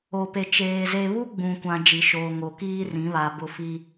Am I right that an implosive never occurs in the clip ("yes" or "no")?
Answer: yes